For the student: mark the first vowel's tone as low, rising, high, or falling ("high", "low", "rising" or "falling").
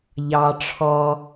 low